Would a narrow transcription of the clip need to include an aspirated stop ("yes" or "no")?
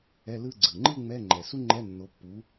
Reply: no